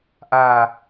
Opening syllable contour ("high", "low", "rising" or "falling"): falling